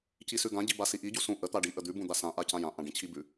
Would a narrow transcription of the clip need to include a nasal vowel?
yes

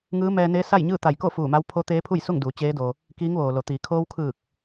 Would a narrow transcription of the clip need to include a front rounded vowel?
no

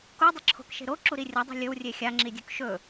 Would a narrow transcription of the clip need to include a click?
yes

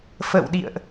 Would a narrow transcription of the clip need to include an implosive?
yes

